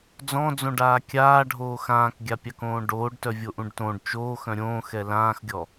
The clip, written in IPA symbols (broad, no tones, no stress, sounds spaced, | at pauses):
d͡z ɔ̃ d͡z õ ɖ aː kʲ aː ɖʱ oː x ãː k ɡʲ a pʲ ɑ k õː ɖ oː ɖ t œ vʲ o ʔ ũ ɖ t õ ɖ t͡ʃ oː x œ̃ ɾʲ õː x ɛ l ãː x ɡʲ ɔ